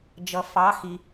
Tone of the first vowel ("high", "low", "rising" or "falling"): low